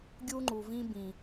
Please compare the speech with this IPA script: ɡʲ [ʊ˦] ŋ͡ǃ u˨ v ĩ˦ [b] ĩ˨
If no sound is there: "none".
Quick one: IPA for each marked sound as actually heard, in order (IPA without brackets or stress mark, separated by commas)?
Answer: u˦, b